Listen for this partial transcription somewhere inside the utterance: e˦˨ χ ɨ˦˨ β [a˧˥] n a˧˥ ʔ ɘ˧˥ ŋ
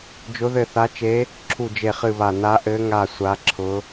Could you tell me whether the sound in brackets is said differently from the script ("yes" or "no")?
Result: yes